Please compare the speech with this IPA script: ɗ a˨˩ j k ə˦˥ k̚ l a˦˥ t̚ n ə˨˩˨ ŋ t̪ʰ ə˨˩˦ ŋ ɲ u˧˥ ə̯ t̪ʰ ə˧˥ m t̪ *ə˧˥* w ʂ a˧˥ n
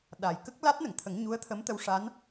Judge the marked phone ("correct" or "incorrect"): correct